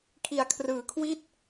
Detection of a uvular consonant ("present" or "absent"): absent